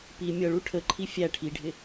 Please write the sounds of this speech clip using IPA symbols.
pi mʲʌɭu ʈʰəǃʰi fʲæ ʈʰiɖʱɪ

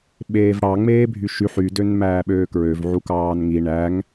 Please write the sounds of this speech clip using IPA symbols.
ɓeːvɽɑ ŋ͡meːbʱyʃyħ ydøn mæːɓøːkɹøvʕu kɑːnŋi ɳæŋ

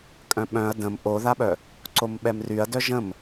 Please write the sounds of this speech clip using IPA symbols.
kʼœ̃ɓœ̃ɐ̯ də̃m ʔoðaɓœ | ǀomɓɛmryɐ̯dœ ʒə̃m

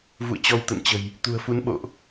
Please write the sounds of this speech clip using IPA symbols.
vṵ˧˨ə̯t͡ɕɔ˧wt̪ə̰˧˨nt͡ɕə̤˨˩j | t̪ṳ˨˩ə̯fu˨˦n ɓo̰˧˨ʔ

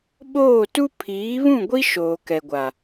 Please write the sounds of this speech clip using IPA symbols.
ɓoː˦˨ tu˦ pʰiː˨˦βũ˦˨ɡʷi˦ ʃoː˨kɛ˨ɡʷa˨

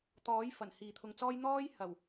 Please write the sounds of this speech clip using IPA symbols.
t̪ɔː˨˥jfɐ˨˩n hiː˨t̪ʰʊ˧ŋt͡sɔː˥j n̪ɔː˥jhɐ˨˩w

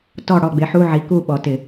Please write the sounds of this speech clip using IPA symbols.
tɔ˥˨ ɽɔ˥˨ɡ͡bɪ˨˥ħu˧˥˧ ʕi˨˥ku˥˨ɓɔ˩˧ tɪ˧˩˧

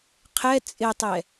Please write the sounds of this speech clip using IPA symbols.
qʰɛ t͡sʼɪtˤɛ

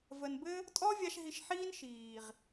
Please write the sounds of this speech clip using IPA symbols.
və˨nbɘ˦ | tʼɔ˦vʲa˧ʃ ɦi˨ʃ ħiː˦n ʃiː˨ʁ

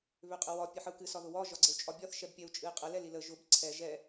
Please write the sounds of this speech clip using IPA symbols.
βʏqʼəwɒ pʲɨħəu̯kɨ sɒðʊwɒ ʒɒɡ͡ǀəu̯t͡ʃʼɒbʲɒθ ʃɛbpʲɛu̯t͡ʃʼɨi̯qʼə lɛlilə ʒʊb ǀʰɛ ʒɛ

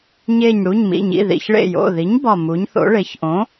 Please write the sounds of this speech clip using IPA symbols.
ɲe˧˩ɲɽu˩˧˩ɲmḭ˩˧˩ɲḭ˩˧˩ ðḭ˩˧˩ç ɭḛ˧˩jo̰˩˧˩ði˩˥ɲ bɒ˧˩mu˩˥ɲθo̰˩˥ɭe˩˥ç ʔõ˩˥

